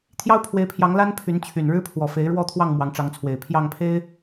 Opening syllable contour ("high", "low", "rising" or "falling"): high